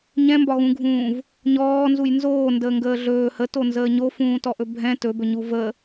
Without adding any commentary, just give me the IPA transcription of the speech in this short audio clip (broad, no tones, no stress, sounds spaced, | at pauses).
ɲ ɛ̃ m b ɒ ɣ ũ ɡʱ ũː v | ɲ ɔː n z u j n z oː n d əː ŋ ɡ əː ɮ ɵː h ə t o n z əː ɲ o f ũː t ɔ ʔ ɵ bʱ ɛ̃ t ɵ b ɵ ɲ u v ə